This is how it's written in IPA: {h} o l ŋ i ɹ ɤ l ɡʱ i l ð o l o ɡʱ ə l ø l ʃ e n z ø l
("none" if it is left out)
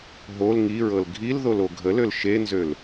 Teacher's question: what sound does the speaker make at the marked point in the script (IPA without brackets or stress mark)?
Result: ɦ